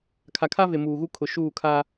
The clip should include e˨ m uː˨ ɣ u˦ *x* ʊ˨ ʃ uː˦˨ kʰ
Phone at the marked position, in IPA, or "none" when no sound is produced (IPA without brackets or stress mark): kʰ